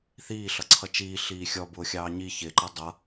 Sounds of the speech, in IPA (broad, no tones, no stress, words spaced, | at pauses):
θiː ɬʌǀʰʌt͡ʃiː ɬiːxʲɔ bʊːxʲɑːɲi çɪǃʌ dˤʌ